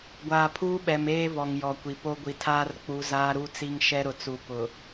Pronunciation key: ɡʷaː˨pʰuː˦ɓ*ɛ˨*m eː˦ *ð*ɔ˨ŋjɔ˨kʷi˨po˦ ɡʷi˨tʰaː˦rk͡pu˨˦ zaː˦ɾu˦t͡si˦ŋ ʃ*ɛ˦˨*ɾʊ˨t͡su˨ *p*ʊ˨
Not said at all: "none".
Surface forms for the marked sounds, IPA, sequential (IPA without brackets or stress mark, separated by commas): ɛ˨, v, ɛ˦, p